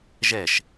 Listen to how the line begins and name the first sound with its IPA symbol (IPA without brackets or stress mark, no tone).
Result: ʒ